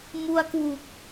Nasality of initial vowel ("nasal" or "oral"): oral